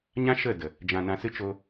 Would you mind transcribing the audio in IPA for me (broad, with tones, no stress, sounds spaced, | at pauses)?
ɲ ã˦ ʃ ə˦˨ d ə˨ | d͡ʒ ã˨ n ã˨ s ɨ˧ t͡ʃ o˧